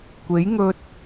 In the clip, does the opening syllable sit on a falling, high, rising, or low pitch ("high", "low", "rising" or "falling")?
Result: rising